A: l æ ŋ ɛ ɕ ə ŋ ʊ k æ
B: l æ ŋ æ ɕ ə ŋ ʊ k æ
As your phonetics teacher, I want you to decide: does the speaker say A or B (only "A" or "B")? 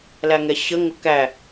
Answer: A